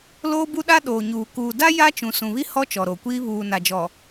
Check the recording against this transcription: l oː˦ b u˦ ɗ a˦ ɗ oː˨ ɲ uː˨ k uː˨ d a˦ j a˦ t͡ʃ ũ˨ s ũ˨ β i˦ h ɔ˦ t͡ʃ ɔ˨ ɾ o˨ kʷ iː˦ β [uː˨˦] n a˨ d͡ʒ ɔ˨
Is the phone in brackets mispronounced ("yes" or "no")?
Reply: yes